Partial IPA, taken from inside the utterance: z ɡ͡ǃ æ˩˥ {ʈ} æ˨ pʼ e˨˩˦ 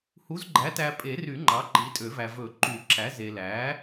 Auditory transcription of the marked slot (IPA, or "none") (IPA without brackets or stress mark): t